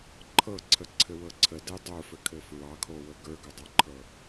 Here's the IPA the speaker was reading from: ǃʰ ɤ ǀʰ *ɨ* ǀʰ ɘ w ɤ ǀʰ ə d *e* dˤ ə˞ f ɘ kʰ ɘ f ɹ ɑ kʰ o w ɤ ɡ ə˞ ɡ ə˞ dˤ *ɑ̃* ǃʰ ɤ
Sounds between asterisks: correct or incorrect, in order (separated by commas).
incorrect, correct, incorrect